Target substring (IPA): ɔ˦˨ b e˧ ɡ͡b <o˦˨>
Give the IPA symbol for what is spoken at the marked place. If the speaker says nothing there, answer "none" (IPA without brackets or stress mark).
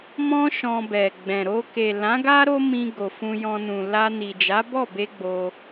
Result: o˧